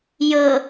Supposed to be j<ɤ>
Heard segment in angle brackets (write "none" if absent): ɤ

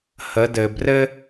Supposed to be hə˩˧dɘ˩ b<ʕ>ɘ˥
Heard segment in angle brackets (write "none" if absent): r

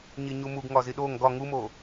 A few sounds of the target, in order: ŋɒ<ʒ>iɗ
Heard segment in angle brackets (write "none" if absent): z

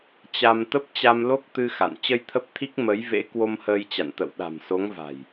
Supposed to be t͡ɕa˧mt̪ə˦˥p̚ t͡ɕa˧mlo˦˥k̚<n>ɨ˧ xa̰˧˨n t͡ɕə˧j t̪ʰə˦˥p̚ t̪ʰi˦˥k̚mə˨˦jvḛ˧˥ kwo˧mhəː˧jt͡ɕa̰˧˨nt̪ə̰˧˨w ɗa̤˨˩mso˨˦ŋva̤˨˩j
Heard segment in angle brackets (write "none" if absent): t̪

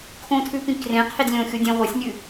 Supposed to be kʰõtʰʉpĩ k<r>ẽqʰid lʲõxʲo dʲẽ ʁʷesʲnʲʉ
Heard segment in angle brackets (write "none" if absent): r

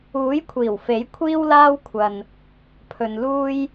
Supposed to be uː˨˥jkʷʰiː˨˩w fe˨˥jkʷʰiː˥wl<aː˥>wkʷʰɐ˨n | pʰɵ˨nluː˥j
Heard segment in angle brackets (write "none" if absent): aː˥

